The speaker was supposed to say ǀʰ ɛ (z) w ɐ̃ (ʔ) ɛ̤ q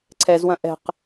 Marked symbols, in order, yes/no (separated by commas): yes, yes